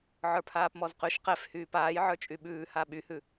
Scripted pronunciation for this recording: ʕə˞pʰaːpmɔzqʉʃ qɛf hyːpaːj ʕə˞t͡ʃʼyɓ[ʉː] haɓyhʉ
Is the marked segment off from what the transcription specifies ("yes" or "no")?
no